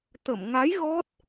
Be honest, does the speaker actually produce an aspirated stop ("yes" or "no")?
no